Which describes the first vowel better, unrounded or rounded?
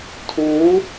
rounded